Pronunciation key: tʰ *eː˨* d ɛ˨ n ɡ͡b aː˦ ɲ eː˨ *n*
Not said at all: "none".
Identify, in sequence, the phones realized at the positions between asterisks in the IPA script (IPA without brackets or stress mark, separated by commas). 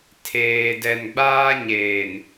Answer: eː˨, n